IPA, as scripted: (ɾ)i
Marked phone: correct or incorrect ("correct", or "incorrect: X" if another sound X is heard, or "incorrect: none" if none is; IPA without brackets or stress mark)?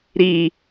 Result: correct